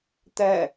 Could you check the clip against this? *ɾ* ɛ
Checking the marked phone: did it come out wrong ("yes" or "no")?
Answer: yes